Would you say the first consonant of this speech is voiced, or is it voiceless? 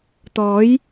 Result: voiceless